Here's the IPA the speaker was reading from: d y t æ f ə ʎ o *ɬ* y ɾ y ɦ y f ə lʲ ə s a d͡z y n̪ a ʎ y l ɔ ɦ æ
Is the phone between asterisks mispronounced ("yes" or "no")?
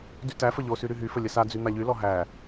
yes